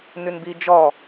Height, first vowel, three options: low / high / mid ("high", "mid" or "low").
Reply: high